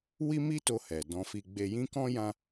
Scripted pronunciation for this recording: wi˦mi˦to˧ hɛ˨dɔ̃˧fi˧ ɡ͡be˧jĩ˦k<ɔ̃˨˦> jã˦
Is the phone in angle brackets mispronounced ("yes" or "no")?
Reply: yes